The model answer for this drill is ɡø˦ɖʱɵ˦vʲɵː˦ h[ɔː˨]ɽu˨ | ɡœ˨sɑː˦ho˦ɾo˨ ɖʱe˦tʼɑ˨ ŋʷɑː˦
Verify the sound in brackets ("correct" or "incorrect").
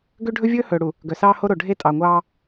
incorrect